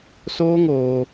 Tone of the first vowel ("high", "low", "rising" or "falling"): high